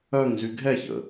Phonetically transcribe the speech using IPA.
œ ŋ z y ɡʱ ɛ ç ə̰

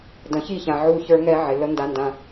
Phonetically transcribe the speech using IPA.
d ə̃˨ ç i˦˨ ç ã˨ ʕ u˦˨ ç ə˞˦ ŋ ɛ˦ ʕ ɪ˨ l ə˦ n d a˦ n d ã˦

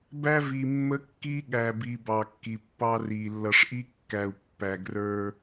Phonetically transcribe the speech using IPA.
b æ˦ v i˨ mː ə˦ kː i˦ ɠ æ˨ b i˨ b ɑ˨ kː i˨ pː ɑ˦ r i˨ lː ʌ˨ ʂ ʔ i˦ kː æ˨ u̯ pː æ˨ ɡ r ə˞˦

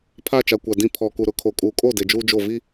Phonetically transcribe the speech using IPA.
pʰ a˦˨ t͡ʃ a˨ kʷ a˨ d ĩ˨ pʰ ɔ˨ k u˨ ɾ ʊ˨ kʰ o˨ kʼ uː˨ kʼ o˦˨ d e˨ d͡ʒ uː˦ d͡ʒ o˦˨ v i˦

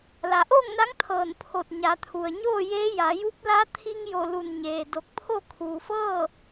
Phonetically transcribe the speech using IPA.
l a˩ ʔ oː˥˨ ŋ n a˧˥ ŋ t̪ʰ ɤː˧˩ n pʰ o˧˩ t̚ ɲ a˩˧ t̪ʰ u˩ ə̯ ɲ oː˥˨ j eː˧˥ j a˩˧ j u˧˥ p̚ l a˧˥ t̪ʰ i˧ ŋ j o˧˩ l u˧˩ n ɲ eː˩ d o˧˩ k̚ pʰ o˥˨ kʰ uː˩ f ɤː˥˨

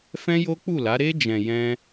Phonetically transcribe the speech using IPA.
f ɛ̃˦ j o˦ k͡p u˦˨ l a˨˦ ɾ e˧ d͡ʒ ɛ̃˨ j ɛ̃˧

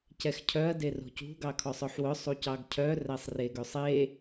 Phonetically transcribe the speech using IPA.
c ɛ x cʰ œ ɐ̯ d e r o̤ c ṳ ɡ ɑ kʰ ɔ sˤ œ ħ w œ sˤ u c ɑ ɡ cʰ œ r æ sˤ r e ɡ ø sˤ e

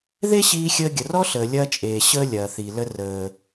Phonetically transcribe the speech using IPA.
ð e˦ ɕ iː˧ xʲ əː˧ ɡʲ ə˨ r ɔ˦ ɬ əː˨ lʲ ɐː˦ t͡ʃʼ eː˨ ɕ əː˦ lʲ ɐː˨ θ i˨ l ə˧ r əː˨

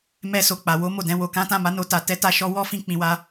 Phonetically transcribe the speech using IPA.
m ɛ˧ s o˨ k͡p a˨ w o˨˦ m o˦˨ d ɛ̃˨˦ w o˧ k ã˦ t ã˦˨ m a˨˦ n o˧ t a˨ t ɛ˨˦ t a˧ ʃ ɔ˧ w ɔ˦ f ĩ˧ k͡p ĩ˨ w a˧

